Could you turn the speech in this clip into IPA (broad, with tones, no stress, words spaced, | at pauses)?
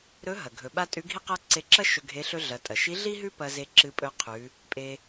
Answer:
ɾɵ˧˥ ɦɐ˩ ɡʱɵ˩ɓa˧ tʼʉ˧˥ɡʱi˥qa˥ ǀe˧ǁɐ˥ ʃɵ˧ɡʱe˧˥ ɬɵ˧ɮɐ˩˧tʼɐ˩ʃi˧˥ ɮi˥ɦʉ˥ pɐ˧ze˧ ǁɨ˧pʼɵ˧ qʰʉ˩˧ | pʼe˧